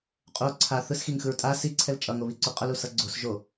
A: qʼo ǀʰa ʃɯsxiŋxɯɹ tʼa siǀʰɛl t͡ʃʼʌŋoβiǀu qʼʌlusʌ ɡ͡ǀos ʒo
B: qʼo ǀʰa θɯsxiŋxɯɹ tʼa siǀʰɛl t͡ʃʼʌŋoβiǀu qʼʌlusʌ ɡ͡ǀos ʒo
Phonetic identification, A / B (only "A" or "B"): B